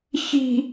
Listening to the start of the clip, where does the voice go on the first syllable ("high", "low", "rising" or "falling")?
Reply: low